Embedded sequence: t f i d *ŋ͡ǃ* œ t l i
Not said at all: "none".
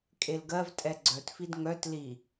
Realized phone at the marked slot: ŋ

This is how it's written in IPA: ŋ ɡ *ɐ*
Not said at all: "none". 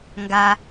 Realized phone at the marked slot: a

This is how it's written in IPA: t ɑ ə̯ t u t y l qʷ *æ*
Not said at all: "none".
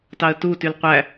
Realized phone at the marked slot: æ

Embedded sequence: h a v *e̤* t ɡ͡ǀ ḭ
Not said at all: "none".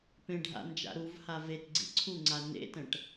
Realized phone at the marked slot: e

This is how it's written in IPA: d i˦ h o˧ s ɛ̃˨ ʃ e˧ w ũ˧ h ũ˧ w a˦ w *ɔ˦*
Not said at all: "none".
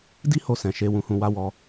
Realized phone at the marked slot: ɔ˦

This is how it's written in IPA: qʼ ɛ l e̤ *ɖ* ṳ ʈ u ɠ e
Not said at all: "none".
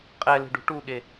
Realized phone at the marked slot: ɖ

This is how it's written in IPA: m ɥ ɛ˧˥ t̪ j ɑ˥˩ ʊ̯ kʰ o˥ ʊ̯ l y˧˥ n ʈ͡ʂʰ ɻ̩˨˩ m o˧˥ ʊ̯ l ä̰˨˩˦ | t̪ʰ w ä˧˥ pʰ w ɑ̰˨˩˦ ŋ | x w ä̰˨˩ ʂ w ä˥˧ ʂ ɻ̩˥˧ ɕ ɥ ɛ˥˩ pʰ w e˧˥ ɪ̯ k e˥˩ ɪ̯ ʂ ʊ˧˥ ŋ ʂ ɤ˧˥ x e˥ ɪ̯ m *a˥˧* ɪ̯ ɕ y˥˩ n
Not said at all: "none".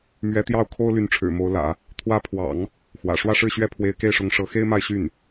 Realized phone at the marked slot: a˥˧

